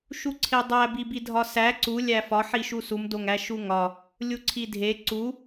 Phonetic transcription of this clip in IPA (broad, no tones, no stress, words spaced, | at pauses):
ʃuǀʰedˤæ bibidʱɒsæ ǀu lʲæfɒ ħiʃusum doŋæʃuŋɒ | lʲuǀʰidʱe ǀu